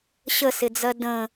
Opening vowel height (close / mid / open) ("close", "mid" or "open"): mid